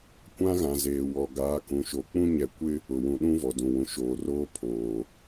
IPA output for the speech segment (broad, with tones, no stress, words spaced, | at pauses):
kʷã˦ɣã˨zeː˨ wɔ˨ɡaː˨˦ kũ˨ʃo˨k͡pũ˦ ɲɛ˨ kʷɪ˦ | ʊ˨wũ˨ɗũ˦ vɔ˨dũ˨wũ˨ʃoː˨ roː˦pʰoː˨